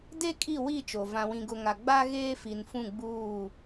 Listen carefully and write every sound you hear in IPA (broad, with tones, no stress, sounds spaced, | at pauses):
d e˦ kʼ i˦˨ w i˦˨ t͡ʃ o˨ v ã˨ w ĩ˨ ɡ ʊ˨ ŋ a˨ ɡ͡b a˦ ɣ eː˦ f i˨ n f ũ˦˨ ɡ͡b uː˦˨